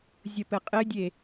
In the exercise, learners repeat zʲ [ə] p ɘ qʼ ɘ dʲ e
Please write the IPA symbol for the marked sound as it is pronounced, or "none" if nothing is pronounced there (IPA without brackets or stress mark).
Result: ə